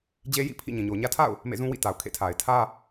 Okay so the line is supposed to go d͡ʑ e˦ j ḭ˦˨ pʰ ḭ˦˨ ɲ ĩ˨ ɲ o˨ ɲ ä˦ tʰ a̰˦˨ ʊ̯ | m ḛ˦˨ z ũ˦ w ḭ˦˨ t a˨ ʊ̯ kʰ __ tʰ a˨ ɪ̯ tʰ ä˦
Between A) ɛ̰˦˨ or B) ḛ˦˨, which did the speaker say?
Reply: B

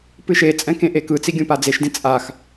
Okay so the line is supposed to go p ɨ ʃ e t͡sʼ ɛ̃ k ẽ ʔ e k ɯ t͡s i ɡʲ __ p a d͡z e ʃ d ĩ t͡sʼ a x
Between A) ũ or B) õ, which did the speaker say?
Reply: B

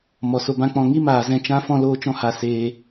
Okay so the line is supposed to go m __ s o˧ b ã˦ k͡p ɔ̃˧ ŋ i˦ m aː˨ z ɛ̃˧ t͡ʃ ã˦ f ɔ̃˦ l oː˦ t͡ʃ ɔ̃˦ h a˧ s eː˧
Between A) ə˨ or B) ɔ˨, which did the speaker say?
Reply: B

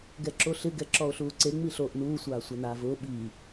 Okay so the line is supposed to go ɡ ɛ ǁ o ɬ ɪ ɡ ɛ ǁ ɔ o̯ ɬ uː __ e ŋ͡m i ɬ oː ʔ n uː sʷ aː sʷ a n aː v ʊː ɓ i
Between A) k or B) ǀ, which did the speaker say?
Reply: B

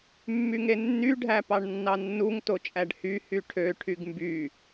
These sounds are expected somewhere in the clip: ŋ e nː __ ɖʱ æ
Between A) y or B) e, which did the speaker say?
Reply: A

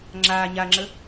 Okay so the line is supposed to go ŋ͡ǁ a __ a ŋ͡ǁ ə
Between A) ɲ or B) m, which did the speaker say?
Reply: A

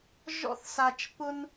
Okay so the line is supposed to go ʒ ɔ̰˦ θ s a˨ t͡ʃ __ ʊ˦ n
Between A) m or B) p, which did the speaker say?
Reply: B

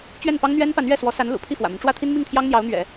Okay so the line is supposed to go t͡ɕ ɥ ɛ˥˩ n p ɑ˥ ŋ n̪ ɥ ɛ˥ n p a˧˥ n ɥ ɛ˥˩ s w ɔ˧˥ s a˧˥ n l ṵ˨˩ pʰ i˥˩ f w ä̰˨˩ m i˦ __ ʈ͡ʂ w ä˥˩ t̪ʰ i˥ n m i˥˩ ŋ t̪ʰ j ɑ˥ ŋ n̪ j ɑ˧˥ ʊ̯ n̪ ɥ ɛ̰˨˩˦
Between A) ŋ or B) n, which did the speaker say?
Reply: B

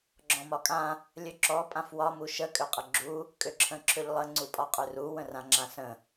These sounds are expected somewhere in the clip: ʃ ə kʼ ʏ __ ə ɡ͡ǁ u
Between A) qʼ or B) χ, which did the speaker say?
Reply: A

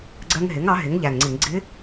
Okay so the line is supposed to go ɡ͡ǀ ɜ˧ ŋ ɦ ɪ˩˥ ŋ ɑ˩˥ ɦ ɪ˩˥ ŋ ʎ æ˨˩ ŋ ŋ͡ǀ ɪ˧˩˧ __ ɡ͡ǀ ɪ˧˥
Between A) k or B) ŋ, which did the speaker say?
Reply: B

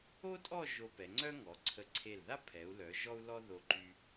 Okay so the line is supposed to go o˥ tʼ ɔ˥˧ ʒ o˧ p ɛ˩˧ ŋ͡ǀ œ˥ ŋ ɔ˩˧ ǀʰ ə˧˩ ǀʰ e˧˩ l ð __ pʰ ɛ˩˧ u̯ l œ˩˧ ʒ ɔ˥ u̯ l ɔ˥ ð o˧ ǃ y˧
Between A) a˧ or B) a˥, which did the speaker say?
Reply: B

